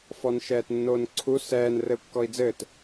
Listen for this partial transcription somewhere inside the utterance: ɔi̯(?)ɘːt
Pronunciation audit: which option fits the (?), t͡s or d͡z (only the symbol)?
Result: d͡z